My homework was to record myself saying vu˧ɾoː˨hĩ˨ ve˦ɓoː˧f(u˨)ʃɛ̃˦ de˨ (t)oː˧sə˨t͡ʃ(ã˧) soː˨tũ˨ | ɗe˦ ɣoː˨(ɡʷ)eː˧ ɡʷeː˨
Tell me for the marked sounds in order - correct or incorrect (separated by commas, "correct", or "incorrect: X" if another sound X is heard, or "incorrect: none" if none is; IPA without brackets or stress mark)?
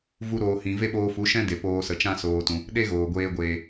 incorrect: u˨˦, incorrect: p, incorrect: ã˦, correct